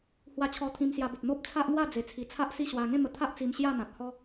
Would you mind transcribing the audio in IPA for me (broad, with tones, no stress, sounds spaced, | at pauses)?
h w a˧ t͡ɕʰ ɔ˧ t̪ʰ ĩ˧ m s j a˧ b ə˨ p̚ n̪ o˦ p̚ t͡sʰ a˦ ʔ ŋ w a˥˧ d͡z e˨˩ t͡sʰ i˨˩ t͡sʰ a˦ ʔ s i˥˧ ɕ w a˧ ŋ ẽ˥˧ m ə˧ t̪ʰ a˦ ʔ t͡s i˧ m ɕ j a˥˧ n̪ ã˨ t̚ h ɔ˦